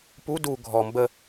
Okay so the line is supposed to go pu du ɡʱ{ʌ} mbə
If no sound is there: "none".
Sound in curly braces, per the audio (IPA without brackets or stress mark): ɔ